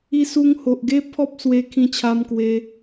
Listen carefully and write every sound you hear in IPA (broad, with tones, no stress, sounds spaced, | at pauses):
i˧ s u˧ ŋ h o˨ ʔ ɡ e˦ pʰ ɔ˦ p̚ s w e˧ kʰ ĩ˧ t͡ɕʰ a˧ m k w e˧